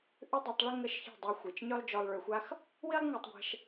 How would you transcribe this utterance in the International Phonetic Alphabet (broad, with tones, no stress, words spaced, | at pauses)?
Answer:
ʔʏ˦dˤi˧tˤɭʏ˦ ŋə˦˨ʃçɛ̤˦˨ dˤø˧xʷi˨t͡ʃɲø˦lˠ d͡ʒɔ˧lˠɭø˧xʷa˦x | wi˦lˠŋø˧tˤɡʷɛ̤˧ʃ